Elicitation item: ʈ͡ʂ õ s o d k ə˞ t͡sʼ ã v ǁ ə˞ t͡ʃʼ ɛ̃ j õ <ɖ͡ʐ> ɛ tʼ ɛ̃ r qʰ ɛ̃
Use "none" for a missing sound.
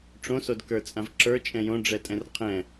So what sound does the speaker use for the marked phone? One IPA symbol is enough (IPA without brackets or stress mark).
ɖ͡ʐ